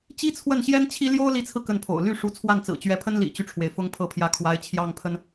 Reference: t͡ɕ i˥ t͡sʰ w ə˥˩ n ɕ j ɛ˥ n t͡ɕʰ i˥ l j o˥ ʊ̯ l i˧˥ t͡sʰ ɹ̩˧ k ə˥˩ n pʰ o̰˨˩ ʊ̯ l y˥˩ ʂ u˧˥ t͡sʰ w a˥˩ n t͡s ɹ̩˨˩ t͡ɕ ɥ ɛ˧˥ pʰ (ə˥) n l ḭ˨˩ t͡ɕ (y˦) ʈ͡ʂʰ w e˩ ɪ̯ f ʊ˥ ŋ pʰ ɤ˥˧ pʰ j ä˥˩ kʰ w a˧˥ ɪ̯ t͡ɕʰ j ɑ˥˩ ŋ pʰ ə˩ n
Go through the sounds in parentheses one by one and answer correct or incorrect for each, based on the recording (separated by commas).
correct, correct